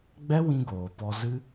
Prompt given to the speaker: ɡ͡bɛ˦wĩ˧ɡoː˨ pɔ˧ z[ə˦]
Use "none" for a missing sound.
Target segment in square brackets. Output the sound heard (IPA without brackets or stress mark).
ɨ˦